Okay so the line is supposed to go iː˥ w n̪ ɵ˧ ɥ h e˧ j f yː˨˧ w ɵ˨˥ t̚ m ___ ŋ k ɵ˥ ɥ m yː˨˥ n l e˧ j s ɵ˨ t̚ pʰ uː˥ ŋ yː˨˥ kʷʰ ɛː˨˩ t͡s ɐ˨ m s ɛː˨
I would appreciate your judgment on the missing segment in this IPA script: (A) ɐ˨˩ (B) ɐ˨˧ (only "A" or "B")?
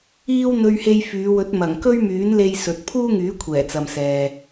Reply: A